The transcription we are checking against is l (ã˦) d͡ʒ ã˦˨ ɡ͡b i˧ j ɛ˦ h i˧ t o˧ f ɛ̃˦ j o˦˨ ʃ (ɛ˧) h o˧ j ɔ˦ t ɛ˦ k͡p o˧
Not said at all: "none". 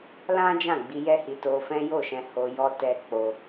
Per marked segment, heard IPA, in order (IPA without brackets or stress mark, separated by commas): ã˦, ɛ̃˧